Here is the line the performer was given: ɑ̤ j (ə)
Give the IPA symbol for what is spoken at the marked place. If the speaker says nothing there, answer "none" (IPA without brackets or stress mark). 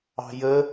ə